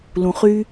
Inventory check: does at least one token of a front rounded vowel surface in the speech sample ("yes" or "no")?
yes